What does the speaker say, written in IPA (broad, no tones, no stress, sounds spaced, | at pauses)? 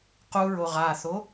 q u ɹ o ʁ a θ o